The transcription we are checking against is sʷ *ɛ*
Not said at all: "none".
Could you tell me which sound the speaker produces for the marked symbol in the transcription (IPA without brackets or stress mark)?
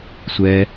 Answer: ɛ